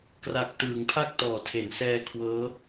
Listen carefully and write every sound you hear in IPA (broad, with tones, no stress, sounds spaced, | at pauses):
k r a˨˩ k̚ t ɯː˩˦ ŋ pʰ a˥˩ k̚ t ɔː˩˦ tʰ e˩˦ n s ɛː˧ kʰ w ɤː˦˥